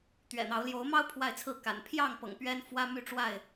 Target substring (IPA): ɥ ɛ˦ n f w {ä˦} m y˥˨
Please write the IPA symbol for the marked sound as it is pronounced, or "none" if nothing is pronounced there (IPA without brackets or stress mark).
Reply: ä˦